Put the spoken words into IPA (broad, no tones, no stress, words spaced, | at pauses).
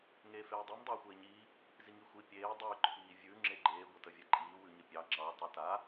ŋeːfeːdˤʉm dˤʉːxʷeːɲiː | ziŋixʷi pʲeː dˤʉ ǃʰiːvʲʉ ŋ͡ǁeɡ͡ǃeː ɡʷətəvʲɛǃʼiː wʉɲəpʲɑ ŋ͡ǁɑ tˤə ta